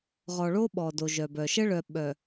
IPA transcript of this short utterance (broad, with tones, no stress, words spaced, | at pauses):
ʁɔ˨ɭo˦ɓɔ˨ do˨ʒœ˨bœ˨ ʃə˦ɭœ˨ ɓœ˨